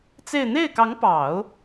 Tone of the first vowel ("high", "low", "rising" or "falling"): falling